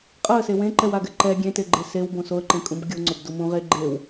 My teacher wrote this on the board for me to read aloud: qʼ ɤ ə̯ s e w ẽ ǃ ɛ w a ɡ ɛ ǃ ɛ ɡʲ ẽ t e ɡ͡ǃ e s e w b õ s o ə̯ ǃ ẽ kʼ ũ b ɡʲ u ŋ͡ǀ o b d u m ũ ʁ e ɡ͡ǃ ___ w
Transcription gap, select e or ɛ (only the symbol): e